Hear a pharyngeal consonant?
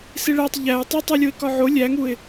yes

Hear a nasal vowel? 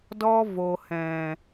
yes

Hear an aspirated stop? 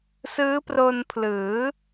yes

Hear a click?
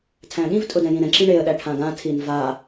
yes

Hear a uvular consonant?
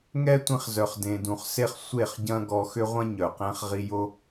yes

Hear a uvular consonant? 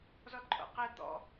yes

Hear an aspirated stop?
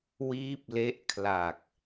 yes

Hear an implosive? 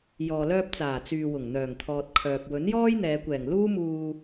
no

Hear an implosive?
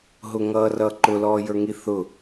no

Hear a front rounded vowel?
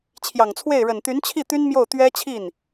yes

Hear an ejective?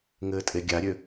yes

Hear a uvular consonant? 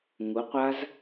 yes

